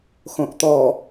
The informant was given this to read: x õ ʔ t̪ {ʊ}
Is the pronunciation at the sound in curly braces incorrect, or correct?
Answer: incorrect